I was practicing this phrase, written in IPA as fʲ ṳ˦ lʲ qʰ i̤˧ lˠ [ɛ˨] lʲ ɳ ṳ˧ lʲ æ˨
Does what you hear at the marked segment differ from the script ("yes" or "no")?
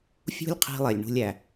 yes